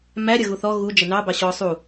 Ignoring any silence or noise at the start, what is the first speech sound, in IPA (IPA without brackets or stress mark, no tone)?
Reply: m